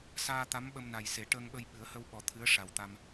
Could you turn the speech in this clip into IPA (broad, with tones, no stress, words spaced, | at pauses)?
saː˧ t̪a˧˥mɓə˧mna˨˩jse˨˩˦ ʈəː˧ŋɓə˧j ɓɨ˨˩˦ə̯hə˧wɓɔ˨˩˦ t̪ʰɨ˧˥ə̯ʂa˨˩wt̪a˧m